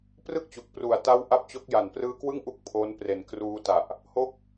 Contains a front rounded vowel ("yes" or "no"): no